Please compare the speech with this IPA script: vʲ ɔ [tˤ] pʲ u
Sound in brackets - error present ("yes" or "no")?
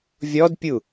yes